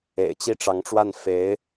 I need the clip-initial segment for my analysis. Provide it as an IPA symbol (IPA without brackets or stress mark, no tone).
ḛ